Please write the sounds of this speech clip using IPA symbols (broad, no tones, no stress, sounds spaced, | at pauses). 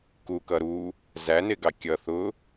k u k ʌ ɾ u | z æ n ɪ ɡ ɑ kʲ ʌ θ ʊ